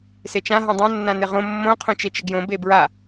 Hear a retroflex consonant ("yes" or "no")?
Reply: no